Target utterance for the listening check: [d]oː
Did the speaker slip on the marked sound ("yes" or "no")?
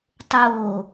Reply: yes